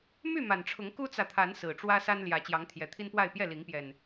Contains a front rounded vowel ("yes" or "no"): yes